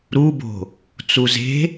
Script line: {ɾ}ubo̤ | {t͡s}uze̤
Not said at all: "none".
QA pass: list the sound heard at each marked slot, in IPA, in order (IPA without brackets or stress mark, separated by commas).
ɾ, t͡s